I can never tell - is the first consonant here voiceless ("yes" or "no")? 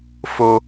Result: yes